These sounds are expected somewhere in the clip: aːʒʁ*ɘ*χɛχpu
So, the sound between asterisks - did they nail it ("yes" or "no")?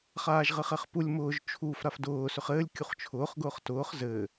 yes